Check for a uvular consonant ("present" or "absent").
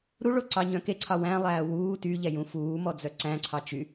absent